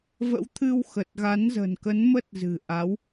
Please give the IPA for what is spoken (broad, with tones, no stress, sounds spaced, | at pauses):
v ə̰˧˥ w t̪ʰ ɨ˧ w x ə˨˩ t̚ ɣ a˨˦ n z ə̤˨˩ n k ə˨˦ n m ə˦˥ t̚ z ɨ̤˨˩ ʔ a˨˦ w